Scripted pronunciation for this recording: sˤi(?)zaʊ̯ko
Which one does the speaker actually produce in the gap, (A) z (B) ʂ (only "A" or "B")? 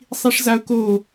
B